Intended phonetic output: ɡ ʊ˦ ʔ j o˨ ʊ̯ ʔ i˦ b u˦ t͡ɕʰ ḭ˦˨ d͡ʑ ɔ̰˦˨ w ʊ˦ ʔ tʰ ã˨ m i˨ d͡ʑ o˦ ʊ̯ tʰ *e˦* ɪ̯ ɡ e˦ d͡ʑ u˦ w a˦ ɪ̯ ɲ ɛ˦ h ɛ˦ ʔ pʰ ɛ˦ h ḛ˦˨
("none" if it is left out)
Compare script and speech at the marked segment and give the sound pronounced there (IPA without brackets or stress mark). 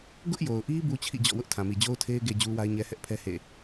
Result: e˦